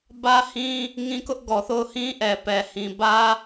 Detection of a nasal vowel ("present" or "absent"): present